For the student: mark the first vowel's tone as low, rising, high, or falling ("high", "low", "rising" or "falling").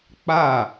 falling